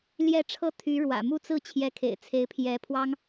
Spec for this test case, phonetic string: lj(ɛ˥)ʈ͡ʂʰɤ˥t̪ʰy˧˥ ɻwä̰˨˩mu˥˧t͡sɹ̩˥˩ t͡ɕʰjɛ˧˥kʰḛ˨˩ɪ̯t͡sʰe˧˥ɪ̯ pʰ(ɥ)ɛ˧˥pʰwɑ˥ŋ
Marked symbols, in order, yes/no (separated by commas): no, no